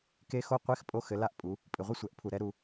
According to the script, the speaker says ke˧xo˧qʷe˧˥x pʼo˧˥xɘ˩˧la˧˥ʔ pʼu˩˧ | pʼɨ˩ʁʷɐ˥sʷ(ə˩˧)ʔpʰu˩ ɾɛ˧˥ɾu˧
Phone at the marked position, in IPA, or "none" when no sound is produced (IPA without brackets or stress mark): ɛ˩˧